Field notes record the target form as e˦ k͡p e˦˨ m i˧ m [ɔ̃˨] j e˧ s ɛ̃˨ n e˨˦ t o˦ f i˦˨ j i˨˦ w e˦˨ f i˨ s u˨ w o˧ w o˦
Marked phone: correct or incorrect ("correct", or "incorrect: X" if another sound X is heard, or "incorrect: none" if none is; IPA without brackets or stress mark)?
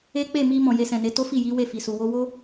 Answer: correct